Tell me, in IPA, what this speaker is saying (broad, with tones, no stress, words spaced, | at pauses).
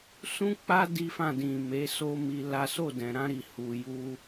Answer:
sũ˦k͡pa˦ di˦fã˦˨ dĩ˨ me˨˦so˦mi˧la˦ so˦˨dɛ̃˨ɾã˧ɾi˨ hu˨ju˧